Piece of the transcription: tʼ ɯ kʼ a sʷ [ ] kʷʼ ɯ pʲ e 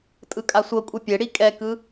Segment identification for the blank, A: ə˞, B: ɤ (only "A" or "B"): B